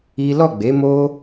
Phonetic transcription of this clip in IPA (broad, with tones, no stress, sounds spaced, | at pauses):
i˦ l ɔ˦˨ ɡ͡b e˨˦ m o˦